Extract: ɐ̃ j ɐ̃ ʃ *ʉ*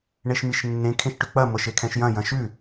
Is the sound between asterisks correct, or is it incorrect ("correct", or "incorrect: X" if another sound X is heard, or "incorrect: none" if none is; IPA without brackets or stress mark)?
correct